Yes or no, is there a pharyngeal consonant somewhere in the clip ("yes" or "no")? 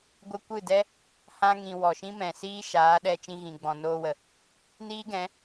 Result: no